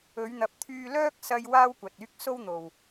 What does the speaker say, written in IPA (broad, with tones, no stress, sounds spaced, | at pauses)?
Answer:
ɵ˨˧ ɥ n̪ ɐ˨ p̚ t̪ʰ yː˧ l œː˥ k̚ s ɐ˧ j w aː˥ w kʷ ɐ˨ t̚ yː˥ k̚ s o˥ w n̪ o˨ w